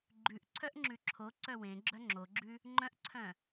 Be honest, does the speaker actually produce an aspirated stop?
yes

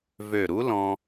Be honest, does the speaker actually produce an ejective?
no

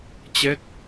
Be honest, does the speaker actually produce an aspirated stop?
no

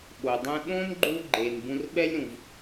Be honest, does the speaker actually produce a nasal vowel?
yes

